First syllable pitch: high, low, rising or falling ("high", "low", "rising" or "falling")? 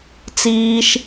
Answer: high